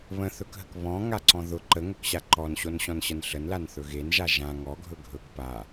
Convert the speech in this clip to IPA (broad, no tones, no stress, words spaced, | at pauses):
βə̃θɵkɦək βɔ̃ŋaǀɔ̃ ðʊ ǃəŋɵkɕa ǃɔnɕonɕɔ̃nɕən ɬənlanθɵ ɣenʒa ʒã ŋɔɡʱɵ ɡʱɵk pa